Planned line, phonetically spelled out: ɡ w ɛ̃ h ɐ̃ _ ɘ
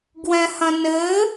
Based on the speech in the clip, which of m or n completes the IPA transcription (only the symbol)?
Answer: n